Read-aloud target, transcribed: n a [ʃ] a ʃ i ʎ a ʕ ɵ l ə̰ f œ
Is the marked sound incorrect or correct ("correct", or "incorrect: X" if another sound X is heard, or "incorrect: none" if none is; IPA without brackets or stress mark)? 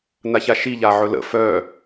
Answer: incorrect: ç